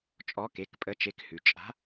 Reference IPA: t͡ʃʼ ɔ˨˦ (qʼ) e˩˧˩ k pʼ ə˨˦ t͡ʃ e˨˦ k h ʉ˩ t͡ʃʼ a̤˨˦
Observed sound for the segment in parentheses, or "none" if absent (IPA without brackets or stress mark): k